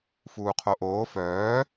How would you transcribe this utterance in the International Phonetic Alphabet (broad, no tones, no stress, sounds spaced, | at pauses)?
f uː qʰ o ʔ oː f œː